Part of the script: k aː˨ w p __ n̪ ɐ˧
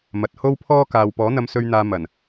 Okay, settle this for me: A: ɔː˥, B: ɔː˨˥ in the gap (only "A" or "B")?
B